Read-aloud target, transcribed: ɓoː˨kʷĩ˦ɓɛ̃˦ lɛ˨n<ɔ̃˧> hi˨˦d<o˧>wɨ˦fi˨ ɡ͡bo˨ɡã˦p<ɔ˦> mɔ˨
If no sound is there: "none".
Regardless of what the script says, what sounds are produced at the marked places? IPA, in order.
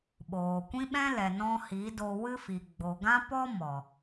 ɔ̃˧, o˧, ɔ˦

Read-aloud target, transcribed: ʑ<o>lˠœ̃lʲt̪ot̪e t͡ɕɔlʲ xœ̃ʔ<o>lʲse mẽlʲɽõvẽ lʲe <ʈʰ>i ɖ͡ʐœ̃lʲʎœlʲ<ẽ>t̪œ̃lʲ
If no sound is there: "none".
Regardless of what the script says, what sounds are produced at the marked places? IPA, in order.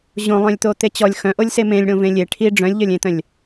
õ, o, ʈʰ, ẽ

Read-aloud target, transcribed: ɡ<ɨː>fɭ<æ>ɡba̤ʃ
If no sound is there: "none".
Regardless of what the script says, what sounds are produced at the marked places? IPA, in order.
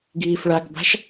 iː, a

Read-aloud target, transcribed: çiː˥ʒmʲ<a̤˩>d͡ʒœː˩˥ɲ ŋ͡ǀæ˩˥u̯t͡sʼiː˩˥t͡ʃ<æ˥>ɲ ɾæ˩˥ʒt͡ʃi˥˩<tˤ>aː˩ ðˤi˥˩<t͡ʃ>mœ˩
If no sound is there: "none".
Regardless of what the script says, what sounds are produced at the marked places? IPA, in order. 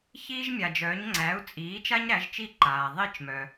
a˩, a˥, ǃ, t͡ʃ

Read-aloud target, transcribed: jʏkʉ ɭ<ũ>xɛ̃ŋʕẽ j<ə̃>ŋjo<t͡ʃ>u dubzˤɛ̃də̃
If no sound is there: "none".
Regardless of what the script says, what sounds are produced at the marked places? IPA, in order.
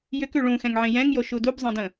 ũ, ɛ̃, ʃ

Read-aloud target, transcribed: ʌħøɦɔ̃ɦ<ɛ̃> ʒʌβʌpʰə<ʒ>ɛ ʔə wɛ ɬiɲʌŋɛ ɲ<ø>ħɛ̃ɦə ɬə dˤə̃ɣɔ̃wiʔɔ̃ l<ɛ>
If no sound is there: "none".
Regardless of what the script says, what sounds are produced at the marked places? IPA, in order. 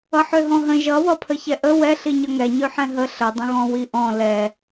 ə̃, ç, ø, ɛ

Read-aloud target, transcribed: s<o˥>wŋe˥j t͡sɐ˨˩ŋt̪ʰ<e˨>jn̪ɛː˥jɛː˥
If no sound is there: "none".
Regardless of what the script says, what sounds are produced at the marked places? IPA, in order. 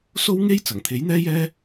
o˥, e˨˥

